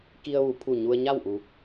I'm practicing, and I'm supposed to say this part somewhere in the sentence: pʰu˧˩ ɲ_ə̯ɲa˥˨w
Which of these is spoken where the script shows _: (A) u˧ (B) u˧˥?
A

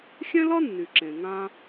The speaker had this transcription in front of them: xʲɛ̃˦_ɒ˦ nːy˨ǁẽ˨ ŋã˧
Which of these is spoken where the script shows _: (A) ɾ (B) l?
B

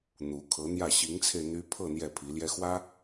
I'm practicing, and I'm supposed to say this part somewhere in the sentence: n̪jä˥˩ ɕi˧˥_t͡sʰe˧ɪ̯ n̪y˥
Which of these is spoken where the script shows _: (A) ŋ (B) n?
A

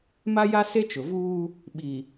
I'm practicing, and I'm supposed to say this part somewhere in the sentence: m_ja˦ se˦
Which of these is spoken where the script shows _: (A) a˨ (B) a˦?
B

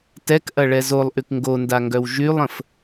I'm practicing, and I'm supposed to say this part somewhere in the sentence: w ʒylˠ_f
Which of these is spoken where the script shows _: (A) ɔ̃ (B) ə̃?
B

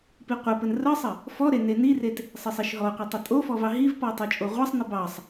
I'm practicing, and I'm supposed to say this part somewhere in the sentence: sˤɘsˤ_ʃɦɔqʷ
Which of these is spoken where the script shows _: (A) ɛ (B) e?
B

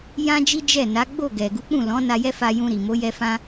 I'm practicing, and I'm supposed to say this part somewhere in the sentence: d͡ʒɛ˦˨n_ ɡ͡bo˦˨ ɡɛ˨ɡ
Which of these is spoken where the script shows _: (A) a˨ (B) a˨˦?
B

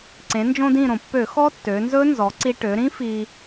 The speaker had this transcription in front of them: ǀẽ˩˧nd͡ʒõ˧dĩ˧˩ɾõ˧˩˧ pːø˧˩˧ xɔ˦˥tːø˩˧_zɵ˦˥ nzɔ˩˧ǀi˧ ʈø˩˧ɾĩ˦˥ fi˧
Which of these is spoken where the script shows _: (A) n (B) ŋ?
A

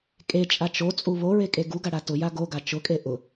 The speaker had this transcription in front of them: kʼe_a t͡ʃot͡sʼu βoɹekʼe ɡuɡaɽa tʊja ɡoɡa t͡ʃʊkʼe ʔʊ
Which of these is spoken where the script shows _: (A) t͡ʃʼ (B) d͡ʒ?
A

